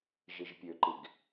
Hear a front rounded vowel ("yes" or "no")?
yes